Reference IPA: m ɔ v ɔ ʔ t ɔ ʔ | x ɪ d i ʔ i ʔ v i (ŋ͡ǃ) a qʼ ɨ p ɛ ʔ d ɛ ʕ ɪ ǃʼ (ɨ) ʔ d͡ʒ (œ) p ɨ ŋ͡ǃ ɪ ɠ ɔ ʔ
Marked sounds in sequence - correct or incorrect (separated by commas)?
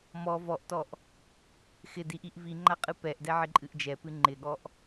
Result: correct, correct, incorrect